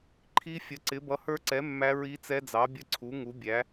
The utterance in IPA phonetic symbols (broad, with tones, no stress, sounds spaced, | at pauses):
ǃʰ i˦˥ fʲ ə˨˥ ǀ ɪ˨˥ b ʌ˨˥ h ə˞˦˥ ǀ ɛ˨˥ mː æ˦˥ ɹ i˦˥ t͡s ɛ˦˥ d͡z ɑ˨˥ bʲ ə˦˥ ǀʰ u˨˥ ŋ u˨˥ bʲ æ˨˥